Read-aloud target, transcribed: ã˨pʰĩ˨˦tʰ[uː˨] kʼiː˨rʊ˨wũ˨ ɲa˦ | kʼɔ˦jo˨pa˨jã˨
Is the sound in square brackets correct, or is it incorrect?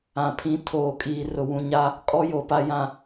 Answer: incorrect